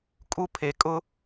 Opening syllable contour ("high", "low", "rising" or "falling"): high